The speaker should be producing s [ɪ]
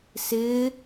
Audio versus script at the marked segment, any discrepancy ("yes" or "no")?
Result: no